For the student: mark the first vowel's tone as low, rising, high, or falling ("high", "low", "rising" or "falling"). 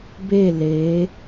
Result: falling